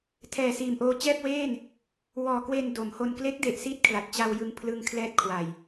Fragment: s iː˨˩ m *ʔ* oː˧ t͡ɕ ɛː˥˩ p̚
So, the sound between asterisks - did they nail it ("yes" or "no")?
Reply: yes